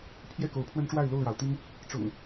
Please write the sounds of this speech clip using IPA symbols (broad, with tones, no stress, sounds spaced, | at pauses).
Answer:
pʰ j ɛ˥˨ k o˨˦ ʊ̯ pʰ w ə˦ n ʈ͡ʂ w a˥˨ ɪ̯ l o˥˨ ʊ̯ ɻ ɑ˩ ʊ̯ t̪ i˦ ŋ | ʈ͡ʂ ʊ̰˨˩ ŋ